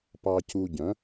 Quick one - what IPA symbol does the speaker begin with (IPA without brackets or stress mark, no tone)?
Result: p